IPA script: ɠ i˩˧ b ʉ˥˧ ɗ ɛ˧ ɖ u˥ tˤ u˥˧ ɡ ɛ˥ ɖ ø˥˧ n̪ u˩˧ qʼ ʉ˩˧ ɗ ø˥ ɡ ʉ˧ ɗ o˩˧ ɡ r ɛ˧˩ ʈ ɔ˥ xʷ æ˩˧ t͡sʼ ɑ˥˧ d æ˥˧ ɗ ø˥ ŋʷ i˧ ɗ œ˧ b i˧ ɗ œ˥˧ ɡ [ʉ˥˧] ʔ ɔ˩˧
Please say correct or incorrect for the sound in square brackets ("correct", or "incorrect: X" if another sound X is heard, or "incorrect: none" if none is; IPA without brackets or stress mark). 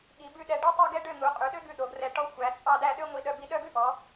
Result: incorrect: ʉ˥